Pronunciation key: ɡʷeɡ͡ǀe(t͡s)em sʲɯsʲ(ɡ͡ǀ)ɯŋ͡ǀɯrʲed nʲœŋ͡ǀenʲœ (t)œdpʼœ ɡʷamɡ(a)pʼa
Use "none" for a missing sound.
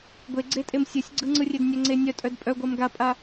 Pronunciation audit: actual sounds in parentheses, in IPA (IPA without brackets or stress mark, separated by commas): tʼ, ɡ͡ǀ, tʼ, a